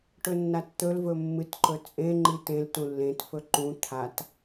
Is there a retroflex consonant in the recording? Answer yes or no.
yes